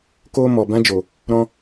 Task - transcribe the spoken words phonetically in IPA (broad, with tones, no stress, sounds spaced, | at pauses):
k oː˧ m ɔ˨ b ã˦ d͡ʒ o˨ | ɾ ɔ̃˧